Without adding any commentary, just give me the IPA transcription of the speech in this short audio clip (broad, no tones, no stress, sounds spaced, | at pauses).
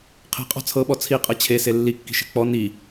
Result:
qʰ e̤ qʼ ɔ̤ t͡sʰ ɤ ɓ ɔ t͡sʰ i qʼ ɤ t͡ɕʰ e s e lː i kː i̤ ʃ e̤ k͡p ɔ n i